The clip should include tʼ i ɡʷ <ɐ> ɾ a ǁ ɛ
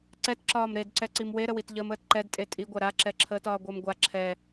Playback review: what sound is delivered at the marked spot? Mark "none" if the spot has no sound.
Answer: ɐ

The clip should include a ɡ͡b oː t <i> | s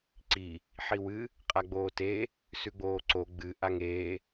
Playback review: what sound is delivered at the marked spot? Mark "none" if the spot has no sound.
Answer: e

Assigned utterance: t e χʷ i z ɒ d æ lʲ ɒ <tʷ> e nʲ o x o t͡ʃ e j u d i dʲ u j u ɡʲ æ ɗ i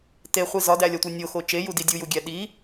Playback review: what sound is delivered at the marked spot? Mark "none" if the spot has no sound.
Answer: tʷ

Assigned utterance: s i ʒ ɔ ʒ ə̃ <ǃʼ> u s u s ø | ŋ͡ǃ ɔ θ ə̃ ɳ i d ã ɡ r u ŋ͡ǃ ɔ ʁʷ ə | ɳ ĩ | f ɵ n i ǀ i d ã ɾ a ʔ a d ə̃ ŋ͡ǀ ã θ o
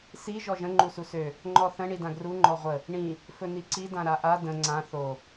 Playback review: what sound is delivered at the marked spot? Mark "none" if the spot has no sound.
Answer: ŋ͡ǃ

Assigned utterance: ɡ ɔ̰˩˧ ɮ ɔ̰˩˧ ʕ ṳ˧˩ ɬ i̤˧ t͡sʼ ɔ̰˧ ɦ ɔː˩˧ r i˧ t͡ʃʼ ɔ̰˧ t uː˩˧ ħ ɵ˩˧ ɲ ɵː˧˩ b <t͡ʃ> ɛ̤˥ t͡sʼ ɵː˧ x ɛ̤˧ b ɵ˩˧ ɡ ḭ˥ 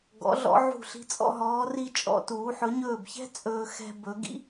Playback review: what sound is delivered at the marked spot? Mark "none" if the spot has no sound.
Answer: ç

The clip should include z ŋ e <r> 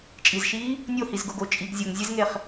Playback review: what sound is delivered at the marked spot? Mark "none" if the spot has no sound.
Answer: χ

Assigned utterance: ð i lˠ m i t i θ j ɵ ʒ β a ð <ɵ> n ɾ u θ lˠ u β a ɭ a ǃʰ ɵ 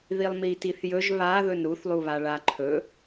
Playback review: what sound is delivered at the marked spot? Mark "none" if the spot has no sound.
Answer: ɵ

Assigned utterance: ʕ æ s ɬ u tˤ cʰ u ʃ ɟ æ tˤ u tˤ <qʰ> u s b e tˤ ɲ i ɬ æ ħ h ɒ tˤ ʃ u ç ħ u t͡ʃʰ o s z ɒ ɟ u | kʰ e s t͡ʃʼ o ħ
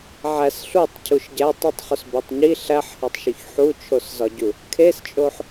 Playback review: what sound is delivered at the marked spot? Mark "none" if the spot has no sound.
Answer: χ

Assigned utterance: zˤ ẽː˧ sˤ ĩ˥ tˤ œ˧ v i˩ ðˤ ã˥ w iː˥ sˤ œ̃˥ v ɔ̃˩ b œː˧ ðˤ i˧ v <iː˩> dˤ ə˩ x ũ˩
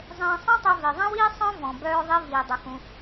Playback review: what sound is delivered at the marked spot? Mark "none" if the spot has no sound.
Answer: iː˩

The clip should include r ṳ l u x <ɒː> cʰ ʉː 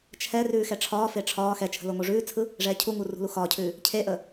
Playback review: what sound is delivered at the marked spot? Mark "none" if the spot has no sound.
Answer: ɒː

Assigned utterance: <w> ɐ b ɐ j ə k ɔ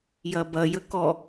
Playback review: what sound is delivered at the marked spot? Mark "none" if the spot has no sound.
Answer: j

